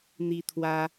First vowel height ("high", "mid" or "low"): high